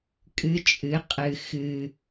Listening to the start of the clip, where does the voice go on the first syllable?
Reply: rising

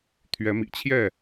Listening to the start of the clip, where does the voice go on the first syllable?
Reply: rising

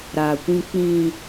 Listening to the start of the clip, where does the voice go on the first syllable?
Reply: low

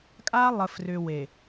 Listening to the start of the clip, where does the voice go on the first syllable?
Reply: high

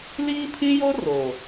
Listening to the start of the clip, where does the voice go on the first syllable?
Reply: high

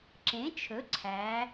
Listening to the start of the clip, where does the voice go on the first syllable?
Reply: rising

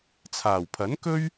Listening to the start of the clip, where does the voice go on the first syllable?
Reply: low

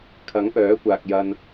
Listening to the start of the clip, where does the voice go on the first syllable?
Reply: rising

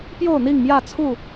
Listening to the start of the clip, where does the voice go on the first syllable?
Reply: falling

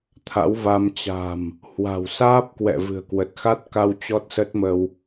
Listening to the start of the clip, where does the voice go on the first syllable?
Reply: rising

